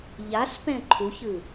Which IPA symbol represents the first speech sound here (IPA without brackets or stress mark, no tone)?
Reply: ʎ